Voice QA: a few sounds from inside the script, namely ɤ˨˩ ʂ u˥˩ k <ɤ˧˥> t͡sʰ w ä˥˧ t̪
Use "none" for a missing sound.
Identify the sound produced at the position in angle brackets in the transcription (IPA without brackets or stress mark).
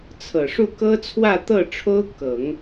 ɤ˥